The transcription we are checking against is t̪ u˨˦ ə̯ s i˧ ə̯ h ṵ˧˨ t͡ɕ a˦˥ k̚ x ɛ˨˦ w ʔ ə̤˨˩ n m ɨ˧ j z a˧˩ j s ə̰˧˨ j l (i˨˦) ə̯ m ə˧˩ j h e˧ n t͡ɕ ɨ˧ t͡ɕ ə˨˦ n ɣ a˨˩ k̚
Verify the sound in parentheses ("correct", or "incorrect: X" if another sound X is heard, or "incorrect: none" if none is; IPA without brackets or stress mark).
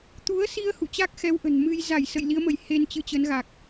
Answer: correct